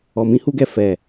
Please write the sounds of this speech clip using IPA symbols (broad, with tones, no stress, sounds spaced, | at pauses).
ɔ˨ m ĩ˧ h u˦ ɡ ɛ˦˨ f ɛ˨